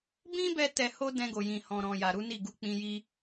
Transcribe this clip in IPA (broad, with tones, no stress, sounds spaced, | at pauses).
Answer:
b ĩ˦ b ɛ˧ t ɛ˧ h o˦ d ɛ̃˧ ɡ o˨ j ĩ˨ h ɔ̃˨ ɾ ɔ̃˨ j a˨ ɾ u˨˦ n i˦˨ ɡ u˧ k͡p ĩ˧ j i˦